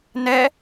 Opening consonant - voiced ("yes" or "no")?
yes